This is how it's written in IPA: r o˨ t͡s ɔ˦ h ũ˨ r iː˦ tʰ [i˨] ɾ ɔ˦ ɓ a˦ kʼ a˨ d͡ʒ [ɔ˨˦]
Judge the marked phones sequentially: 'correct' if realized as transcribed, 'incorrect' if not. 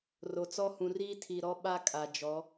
correct, correct

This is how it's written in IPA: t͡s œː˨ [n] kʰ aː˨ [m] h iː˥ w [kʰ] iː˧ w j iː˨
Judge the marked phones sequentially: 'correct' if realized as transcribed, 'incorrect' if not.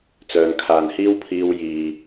correct, incorrect: n, incorrect: pʰ

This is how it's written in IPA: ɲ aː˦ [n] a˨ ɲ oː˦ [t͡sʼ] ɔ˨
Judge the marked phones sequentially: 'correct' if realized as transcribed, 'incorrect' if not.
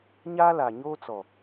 incorrect: l, incorrect: t͡s

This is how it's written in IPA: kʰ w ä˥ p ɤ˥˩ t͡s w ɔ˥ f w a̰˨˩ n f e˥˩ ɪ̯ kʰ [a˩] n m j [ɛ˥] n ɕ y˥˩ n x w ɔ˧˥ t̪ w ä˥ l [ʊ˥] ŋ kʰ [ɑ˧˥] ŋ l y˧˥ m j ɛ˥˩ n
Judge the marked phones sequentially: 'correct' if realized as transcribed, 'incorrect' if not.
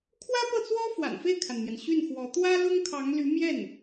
correct, incorrect: ɛ˩, correct, correct

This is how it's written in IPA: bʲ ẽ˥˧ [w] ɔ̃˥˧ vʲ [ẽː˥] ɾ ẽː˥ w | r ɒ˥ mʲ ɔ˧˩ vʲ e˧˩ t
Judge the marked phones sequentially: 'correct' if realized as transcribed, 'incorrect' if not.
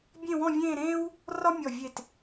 correct, incorrect: ẽː˥˧

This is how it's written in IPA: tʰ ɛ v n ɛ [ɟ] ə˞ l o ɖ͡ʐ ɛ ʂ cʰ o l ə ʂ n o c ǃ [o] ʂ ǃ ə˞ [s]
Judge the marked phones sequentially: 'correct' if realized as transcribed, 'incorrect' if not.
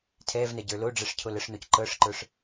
correct, incorrect: ɤ, incorrect: ʂ

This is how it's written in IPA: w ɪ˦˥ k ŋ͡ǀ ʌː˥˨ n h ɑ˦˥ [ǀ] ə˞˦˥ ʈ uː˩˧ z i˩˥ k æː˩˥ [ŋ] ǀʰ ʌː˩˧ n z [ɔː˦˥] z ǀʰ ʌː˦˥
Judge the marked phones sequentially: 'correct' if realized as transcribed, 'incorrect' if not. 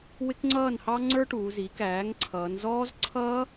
incorrect: ŋ͡ǀ, correct, correct

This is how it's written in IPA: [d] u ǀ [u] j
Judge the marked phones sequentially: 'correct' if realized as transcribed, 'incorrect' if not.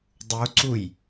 incorrect: dˤ, correct

